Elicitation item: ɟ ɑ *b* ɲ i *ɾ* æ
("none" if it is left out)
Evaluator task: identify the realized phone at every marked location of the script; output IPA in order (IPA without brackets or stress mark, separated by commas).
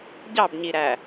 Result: b, ɾ